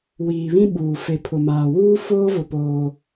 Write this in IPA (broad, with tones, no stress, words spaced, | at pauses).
wiː˨βĩ˦ɓuː˨ fe˨pʰʊ˨maː˨ wuː˦foː˦ vʊ˦poː˦